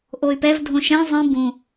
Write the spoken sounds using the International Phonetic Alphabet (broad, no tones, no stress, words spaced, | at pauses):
ʔoy̯pɛvdʱõ ʃɛ̃ zˤĩ bũ